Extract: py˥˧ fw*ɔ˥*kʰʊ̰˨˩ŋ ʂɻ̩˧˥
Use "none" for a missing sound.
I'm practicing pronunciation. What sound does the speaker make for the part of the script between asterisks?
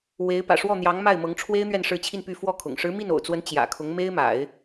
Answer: ɔ˥˩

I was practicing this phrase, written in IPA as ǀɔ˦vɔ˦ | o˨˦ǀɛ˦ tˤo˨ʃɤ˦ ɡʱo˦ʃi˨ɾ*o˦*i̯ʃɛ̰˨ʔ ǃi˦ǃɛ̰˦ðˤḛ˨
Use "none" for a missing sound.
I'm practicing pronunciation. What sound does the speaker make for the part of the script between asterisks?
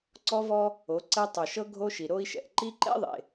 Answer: o˦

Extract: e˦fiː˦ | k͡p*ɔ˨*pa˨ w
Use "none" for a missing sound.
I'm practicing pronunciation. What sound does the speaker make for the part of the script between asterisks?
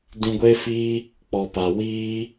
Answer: ɔ˨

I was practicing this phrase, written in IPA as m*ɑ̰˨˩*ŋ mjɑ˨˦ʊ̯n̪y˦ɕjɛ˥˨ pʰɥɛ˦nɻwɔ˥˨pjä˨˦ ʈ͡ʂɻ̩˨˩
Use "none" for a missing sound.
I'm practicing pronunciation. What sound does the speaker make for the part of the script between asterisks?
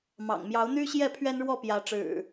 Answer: ɑ̰˨˩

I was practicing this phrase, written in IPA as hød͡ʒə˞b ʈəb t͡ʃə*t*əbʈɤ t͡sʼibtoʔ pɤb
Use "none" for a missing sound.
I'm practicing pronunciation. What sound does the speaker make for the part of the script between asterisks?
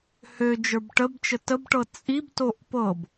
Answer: t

